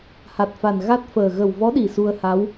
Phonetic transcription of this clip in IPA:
h a˨˩ t̚ f a˨˩ n ɣ a˦˥ t̚ f əː˨˩ ɣ ə˨˩ w v ɔ˧˥ ɗ i˨˩ s u˧ ə̯ h a˧˥ w

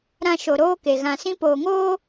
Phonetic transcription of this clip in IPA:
ɾ ã˨ ʃ o˨ ɾ oː˦ k e˨ ɣ ã˨ s ĩ˦ p oː˨ ŋ oː˦

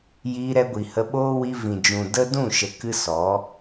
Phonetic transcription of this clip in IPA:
j iː˧ ɾ ɛ˧ ɡʷ i˨ h ə˧ ɓ oː˦ w i˧ v ĩ˨ d͡ʒ ũ˨ d ə˦ d ũ˦˨ ʃ ə˨ k ɨ˦ s ɔ˨˦

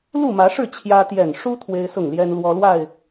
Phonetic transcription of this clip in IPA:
l u˥˨ m ä˨˦ ʂ ɻ̩˥˨ t͡ɕʰ j ä˦ t̪ j ɛ˨˩ n ʂ u˦ t̪ʰ w e˦ ɪ̯ s ʊ˥˨ ŋ l j ɛ˦ n l w ɔ˦ l w a˥˨ ɪ̯

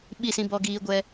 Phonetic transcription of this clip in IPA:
ɓ i˦˨ s ĩ˧ b ɔ˧ ɡ iː˧ ɡʷ ɛ˧

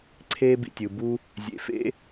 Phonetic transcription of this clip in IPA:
ǀʰ eː˦ b ḭ˩ tʲ ɯ˩ b u˥ | zʲ ḛ˨ f ḛ˥

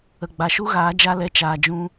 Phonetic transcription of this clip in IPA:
ə˨ ɡ͡b a˨ ʃ u˦ ɣ aː˨˦ d͡ʒ a˦ l ɛ˧ t͡ʃ aː˧ d͡ʒ ũ˦

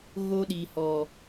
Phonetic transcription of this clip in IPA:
ɣ o˦ ɗ i˨ h ɔ˨

